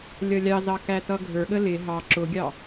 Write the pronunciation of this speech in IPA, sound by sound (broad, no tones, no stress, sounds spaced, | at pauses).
lʲ ʌ lʲ ɑ z ɑ k æ t ʌ ɡʱ ə˞ ɠ ə l ɪ ɦ ɑ ǁ ʊ ɡʲ ɑ